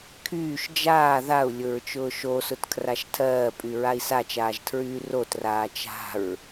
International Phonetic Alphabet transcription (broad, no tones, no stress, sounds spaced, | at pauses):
kʰ yː ʃ d͡ʒ aː ð a u̯ lʲ ʊ ɹ t͡ʃ ʊː ʃ o s ʊ t kʰ r a ʃ tʰ ɜː pʼ y ɹ a i̯ s a t͡ʃ aː ʒ tʰ ɹ yː r o t r aː t͡ʃ a̤ ɹ